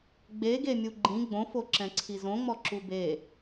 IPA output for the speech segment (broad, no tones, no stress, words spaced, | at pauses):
ɡ͡be ɡemʲuɡ͡ǃĩ ɡ͡bõfoǁɛ̃ ǀʰizõŋ͡mɔ ǁube